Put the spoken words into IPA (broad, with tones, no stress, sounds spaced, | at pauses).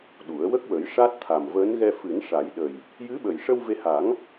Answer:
ɗ u˨˩˦ ə̯ w ə˦˥ k̚ w ə˨˩˦ j ʂ a˦˥ t̚ t̪ʰ a˨˩ m v əː˧˥ n ɣ ɛ˧ f ɨ˨˩˦ n ʂ a˨˩˦ j ɗ ə˨˩ j | j ɨ˧˥ ɓ ə˨˩ j ʂ ə˧ w v e˧ h a˨˩˦ ŋ